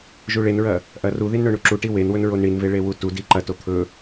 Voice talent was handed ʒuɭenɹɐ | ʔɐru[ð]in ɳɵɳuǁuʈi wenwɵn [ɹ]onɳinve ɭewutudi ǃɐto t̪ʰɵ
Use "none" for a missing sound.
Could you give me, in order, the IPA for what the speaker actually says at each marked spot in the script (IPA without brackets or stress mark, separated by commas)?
ð, ɹ